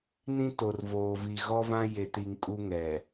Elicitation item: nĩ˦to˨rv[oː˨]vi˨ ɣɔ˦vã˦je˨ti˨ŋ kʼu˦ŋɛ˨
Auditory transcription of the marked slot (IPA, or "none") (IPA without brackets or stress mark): oː˨